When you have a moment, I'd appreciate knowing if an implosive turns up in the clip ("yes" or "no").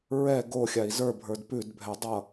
no